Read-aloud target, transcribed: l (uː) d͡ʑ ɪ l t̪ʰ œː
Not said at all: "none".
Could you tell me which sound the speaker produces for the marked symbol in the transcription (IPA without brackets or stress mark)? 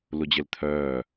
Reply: u